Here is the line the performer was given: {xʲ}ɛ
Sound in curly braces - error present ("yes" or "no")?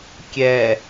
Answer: yes